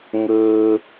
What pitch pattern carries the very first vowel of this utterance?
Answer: high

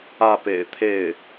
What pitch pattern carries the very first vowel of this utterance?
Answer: falling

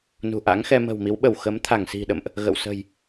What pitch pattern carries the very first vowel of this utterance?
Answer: low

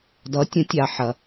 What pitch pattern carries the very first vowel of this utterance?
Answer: rising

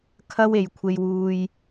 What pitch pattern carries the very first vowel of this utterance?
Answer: high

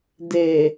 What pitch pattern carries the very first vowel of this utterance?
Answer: low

